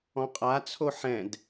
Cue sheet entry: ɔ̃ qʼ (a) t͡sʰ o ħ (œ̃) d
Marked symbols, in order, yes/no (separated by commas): yes, no